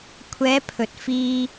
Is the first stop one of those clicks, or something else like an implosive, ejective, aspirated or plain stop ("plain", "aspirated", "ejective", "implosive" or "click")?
aspirated